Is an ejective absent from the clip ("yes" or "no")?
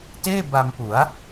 yes